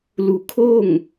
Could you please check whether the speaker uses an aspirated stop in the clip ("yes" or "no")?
yes